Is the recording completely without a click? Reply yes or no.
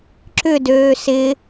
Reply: no